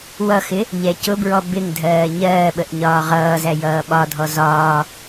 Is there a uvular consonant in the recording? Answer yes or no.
yes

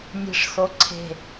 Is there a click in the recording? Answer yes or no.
yes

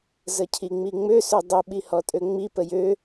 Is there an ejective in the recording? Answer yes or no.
yes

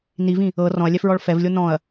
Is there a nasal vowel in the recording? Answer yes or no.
yes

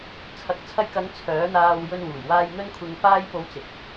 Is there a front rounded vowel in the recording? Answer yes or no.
yes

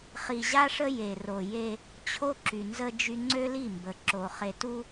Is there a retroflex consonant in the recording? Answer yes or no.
yes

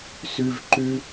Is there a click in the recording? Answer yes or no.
yes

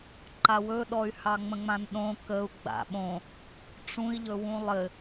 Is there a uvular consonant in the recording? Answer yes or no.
no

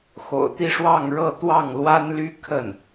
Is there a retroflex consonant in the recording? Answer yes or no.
yes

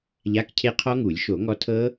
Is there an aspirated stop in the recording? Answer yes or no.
yes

